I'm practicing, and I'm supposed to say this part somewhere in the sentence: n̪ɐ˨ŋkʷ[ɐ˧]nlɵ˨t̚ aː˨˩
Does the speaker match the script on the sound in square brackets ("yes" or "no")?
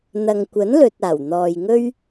no